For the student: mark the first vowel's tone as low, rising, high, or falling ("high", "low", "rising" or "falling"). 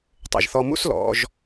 low